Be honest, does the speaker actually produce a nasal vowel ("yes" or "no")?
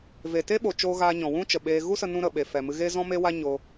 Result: yes